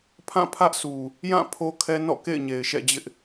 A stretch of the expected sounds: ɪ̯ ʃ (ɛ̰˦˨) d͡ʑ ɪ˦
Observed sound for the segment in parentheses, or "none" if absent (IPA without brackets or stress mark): ɛ̰˦˨